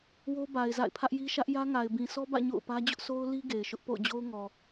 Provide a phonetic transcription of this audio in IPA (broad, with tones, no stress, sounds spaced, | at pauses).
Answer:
w o˦ b a˨ ɪ̯ z a̰˦˨ ɪ̯ pʰ ä˦ ʔ j i˦ ʃ ä˦ ʔ j ä˦ ŋ a˨ ɪ̯ b ĩ˨ sʰ ɔ˦ b ä̰˦˨ ɲ o̰˦˨ ʊ̯ p ä˦ d͡ʑ ʊ˦ ʔ sʰ o˦ ʊ̯ l i˦ ɡ e˨ ɪ̯ ʃ ʊ˦ ʔ p o̰˦˨ ʊ̯ d͡ʑ o˦ ʊ̯ ŋ ɔ˨